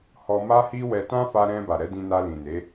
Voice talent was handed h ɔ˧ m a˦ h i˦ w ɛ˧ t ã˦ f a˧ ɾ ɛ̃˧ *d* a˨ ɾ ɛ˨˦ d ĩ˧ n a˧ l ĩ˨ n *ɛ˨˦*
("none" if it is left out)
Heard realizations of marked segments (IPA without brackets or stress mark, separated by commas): b, e˨˦